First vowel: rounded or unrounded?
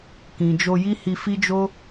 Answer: unrounded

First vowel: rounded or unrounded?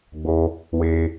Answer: rounded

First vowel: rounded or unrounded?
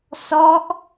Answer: rounded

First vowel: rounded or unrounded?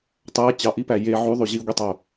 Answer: unrounded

